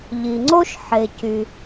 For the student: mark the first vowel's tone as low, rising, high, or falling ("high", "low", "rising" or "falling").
low